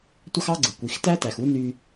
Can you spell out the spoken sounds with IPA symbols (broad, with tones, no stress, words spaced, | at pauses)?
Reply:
tʷɑ˥xɑ˥ɡ͡ǀɯ˩ kʷi˩x tæ˥tæ˩x u˥ny˧